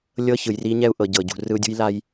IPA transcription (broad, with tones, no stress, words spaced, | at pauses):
lʲɤ˦çɯ˨jri˦ ɲɛ˦u̯ʔɤ˨ ɟɤ˨ɟṳ˨ rɯ˦u̯dʲṳ˦jla˦j